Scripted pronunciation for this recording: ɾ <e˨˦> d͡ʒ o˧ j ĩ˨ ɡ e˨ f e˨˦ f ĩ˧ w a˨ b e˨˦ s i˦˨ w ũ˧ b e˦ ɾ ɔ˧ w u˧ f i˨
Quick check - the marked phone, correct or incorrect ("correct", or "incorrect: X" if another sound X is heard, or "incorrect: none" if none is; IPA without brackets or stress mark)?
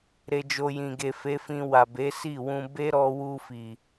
incorrect: e˧